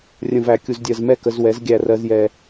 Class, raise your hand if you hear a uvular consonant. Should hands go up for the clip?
no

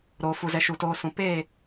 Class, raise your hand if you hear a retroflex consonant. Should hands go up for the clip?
no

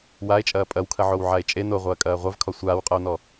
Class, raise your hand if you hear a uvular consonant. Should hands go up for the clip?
yes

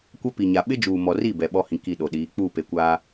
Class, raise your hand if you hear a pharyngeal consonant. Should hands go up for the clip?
no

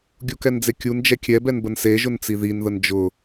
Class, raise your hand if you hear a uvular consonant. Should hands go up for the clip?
no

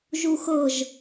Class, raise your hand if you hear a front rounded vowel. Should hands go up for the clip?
no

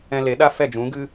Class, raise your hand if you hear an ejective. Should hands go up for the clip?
no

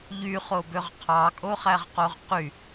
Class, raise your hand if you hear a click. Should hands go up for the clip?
no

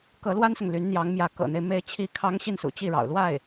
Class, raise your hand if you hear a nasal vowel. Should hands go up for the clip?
no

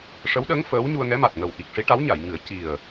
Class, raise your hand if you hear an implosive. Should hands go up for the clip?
yes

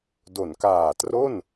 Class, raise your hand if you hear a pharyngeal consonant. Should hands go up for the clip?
no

